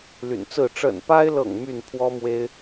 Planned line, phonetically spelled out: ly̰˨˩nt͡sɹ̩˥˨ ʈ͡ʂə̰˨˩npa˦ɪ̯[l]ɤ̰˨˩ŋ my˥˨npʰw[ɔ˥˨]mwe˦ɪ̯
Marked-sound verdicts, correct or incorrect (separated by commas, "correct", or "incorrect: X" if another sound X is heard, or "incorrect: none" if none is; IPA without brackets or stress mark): correct, incorrect: ɔ˦